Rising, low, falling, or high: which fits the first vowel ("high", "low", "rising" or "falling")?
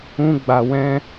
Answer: high